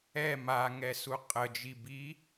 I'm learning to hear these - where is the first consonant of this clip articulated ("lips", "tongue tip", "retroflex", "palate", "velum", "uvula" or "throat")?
lips